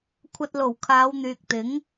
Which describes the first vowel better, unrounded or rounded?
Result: unrounded